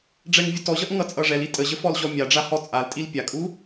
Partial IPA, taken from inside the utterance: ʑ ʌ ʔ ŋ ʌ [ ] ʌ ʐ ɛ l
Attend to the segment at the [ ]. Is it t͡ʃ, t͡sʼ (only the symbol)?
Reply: t͡sʼ